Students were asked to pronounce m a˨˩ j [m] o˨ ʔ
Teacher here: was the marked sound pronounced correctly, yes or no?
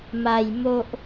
yes